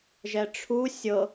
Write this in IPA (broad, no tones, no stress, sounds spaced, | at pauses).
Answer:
ʒ ɛ ʈ͡ʂʰ u sʲ ɤ